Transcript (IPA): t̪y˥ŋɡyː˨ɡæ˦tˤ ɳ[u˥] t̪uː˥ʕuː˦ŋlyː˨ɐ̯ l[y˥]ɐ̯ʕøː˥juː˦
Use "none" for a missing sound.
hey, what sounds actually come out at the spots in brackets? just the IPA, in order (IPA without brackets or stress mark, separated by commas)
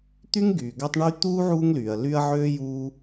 y˥, y˦